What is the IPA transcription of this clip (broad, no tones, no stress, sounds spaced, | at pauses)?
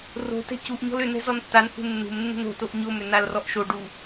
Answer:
r o̤ t ɛ̤ c u ʔ ɲ ɔ̤ l ʏ n ɛ̤ z ɔ n tː a n h ṳ nː ṳ m nː ṳ n o̤ t o ʔ ɲ o m ʏ n a l r ɔ ʔ ʃ o ɖ u